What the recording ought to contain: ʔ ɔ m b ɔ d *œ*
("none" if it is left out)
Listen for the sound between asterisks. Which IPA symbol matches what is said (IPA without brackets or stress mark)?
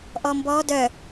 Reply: œ